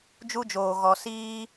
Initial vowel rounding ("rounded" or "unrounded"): rounded